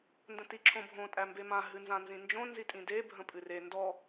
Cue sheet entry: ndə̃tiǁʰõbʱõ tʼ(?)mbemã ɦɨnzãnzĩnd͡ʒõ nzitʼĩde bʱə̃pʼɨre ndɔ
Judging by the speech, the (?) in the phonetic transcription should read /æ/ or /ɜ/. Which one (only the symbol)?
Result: æ